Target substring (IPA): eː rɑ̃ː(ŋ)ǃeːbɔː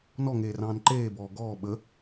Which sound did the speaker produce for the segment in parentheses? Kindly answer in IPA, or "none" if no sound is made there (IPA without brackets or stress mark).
n